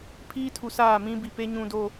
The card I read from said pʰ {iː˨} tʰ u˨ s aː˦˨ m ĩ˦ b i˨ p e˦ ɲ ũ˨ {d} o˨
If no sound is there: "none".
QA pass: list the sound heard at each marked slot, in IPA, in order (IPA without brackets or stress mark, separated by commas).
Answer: iː˦, d